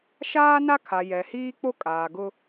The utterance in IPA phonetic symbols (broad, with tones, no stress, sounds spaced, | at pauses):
ʃ aː˦ n a˦ kʰ a˨ j ɛ˨ h iː˦ k͡p o˦ kʼ aː˨ ɡ ʊ˦